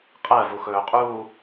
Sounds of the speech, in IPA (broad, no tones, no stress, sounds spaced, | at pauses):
qʼ ɜ v u x ɵː qʼ uː